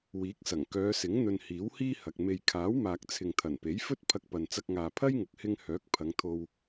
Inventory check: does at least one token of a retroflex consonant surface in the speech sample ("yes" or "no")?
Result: no